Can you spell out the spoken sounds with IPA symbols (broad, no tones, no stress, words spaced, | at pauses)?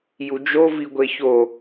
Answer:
jud͡ʒo viɡʷeço